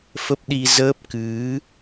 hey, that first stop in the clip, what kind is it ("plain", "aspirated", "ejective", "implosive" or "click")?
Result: plain